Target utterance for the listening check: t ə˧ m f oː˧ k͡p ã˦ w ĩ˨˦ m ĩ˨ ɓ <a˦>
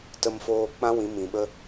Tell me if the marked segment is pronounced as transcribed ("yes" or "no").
no